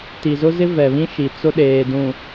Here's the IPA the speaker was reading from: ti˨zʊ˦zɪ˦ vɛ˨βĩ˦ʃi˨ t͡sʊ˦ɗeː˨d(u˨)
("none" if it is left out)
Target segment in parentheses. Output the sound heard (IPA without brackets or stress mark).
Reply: ũ˨